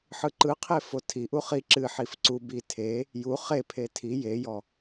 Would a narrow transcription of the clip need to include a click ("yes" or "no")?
yes